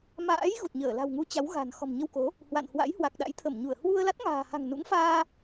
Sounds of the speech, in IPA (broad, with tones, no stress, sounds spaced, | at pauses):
m a̰ː˧˥ j ɣ u˨˩ t̚ ɲ əː˧˩ l a̤˨˩ w ŋ u˨˦ t͡ɕ a˨˦ w ɣ a̤˨˩ n x ɔ̤˨˩ m ɲ ə˧ w k o˨˦ | h w a̰˧˨ n h w a̰˧˥ j h w a˨˩ k̚ ɗ a̰˧˥ j t̪ʰ ə˧˩ m ɲ u˧˩ ə̯ h w u˧ ə̯ l a˦˥ t̚ ŋ a̤ː˨˩ h a̤˨˩ ŋ n ṵ˧˥ ŋ f aː˧